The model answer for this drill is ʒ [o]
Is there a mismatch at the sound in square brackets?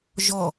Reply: yes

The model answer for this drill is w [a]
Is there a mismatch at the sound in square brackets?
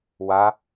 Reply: no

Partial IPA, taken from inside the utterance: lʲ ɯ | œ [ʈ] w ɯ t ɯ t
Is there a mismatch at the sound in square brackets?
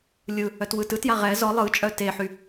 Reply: yes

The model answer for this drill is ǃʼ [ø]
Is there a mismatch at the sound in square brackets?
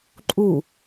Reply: yes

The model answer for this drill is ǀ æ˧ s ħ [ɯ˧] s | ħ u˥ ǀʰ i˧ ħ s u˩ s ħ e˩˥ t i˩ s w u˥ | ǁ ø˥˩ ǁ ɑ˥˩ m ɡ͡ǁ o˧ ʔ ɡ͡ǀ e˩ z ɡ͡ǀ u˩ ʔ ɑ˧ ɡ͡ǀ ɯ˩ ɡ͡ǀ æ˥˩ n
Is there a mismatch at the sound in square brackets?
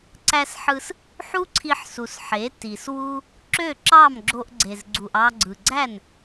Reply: no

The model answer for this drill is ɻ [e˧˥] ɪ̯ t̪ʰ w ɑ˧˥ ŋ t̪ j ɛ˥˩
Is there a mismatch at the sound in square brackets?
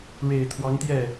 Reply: yes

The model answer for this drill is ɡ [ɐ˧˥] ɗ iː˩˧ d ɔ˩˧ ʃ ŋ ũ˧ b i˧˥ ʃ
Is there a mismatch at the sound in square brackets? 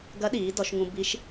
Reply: no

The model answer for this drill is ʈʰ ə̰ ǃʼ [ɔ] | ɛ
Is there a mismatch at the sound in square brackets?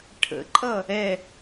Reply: yes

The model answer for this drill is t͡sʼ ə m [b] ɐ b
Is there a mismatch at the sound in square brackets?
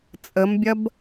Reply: yes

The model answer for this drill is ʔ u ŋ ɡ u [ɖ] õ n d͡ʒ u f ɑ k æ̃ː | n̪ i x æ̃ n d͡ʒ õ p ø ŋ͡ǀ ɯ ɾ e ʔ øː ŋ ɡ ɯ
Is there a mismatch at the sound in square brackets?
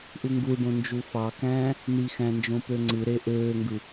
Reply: no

